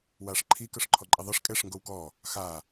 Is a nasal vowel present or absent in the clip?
absent